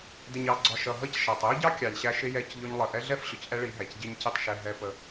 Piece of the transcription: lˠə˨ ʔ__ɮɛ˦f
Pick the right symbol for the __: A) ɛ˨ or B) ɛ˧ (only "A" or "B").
B